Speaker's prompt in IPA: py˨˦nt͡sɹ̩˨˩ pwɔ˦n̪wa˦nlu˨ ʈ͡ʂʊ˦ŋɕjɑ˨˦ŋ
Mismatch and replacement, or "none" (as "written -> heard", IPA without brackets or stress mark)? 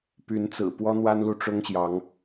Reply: none